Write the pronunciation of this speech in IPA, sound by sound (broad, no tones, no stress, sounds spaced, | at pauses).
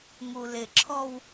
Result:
ŋ u l ɪ ǁʰ ɔ w